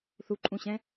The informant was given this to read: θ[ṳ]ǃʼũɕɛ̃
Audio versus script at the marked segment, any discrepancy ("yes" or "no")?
yes